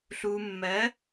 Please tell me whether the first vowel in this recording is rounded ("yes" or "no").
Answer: yes